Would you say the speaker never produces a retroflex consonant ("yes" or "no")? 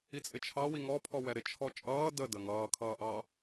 yes